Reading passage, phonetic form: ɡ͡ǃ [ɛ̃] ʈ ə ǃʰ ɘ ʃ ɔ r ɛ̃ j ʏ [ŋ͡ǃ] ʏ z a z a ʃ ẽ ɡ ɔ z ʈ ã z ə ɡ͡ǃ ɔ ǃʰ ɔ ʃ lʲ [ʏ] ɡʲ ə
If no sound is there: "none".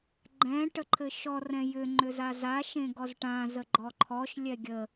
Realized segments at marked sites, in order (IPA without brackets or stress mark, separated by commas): ɛ̃, ŋ͡ǃ, ɛ